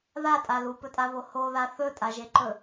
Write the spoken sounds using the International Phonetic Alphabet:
ð a tʼ a l u p ɵ tʼ a β o h o ð a θ ɵ tʼ a ʒ e ǃ ɵ

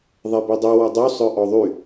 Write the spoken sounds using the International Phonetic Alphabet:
ðˤ e b i dˤ y w ɔ dˤ u sˤ œ ʔ ɔ ðˤ y

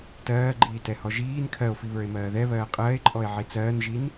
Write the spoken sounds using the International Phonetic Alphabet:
t ɜː ɡ͡ǃ iː t ɛ h ɔ ʒ iː n kʰ ɜ o̯ f i β ə˞ e̯ m ɜː ð ɛ β ɜː qʼ ɜː e̯ ǃʼ ɔ e̯ ʕ i t͡s ɜː n ʒ i n

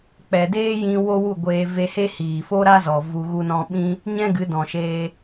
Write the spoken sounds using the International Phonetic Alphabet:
k͡p ɛ˨ d eː˦ j ĩ˧ w o˦ w u˦˨ ɡʷ eː˧ v e˧ h e˦ h iː˨ f o˦ ɾ a˦ z ɔ˨ v u˧ ɣ u˧ n ɔ̃˧ ɓ ĩ˦ | ɲ ɛ̃˦ ɡ ɨ˨˦ d ɔ̃˨ ʃ eː˧

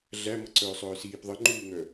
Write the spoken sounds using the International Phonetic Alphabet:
ɮ æ m ʌ ǀ œː sˤ œː s iː p ðˤ ə ŋ͡ǃ uː ŋ œ

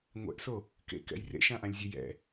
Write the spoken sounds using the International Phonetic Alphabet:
ŋʷ ɛ̰ ʔ s o | k ḛ k ɛ̰ j r ḛ ʃ ã ʔ ã lʲ zʲ ʉ j ɛ̰

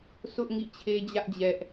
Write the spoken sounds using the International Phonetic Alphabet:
s ʊ˦ ʔ ŋ ḭ˦˨ t͡ɕʰ e˦ d͡ʑ ä˦ ʔ d͡ʑ ɛ˦ ʔ

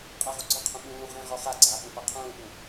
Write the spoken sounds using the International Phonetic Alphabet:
qʼ a ʁ u ɡ͡ǀ ɔ qʰ ũ ɓ ũː ʁ ẽ ʁ ɔ χ a ɡ͡ǀ aː ɓ ũ p a qʰ ũː ɓ ũ

